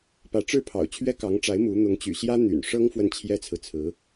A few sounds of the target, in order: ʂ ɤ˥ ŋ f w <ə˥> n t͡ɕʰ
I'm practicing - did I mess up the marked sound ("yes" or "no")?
yes